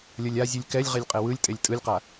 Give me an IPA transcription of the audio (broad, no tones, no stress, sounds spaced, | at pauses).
lʲ ʌ lʲ a zʲ ɯ lʲ k ɛ lʲ ʁ e lʲ qʼ e w ɯ lʲ tʼ e lʲ tʼ ɯ lʲ q a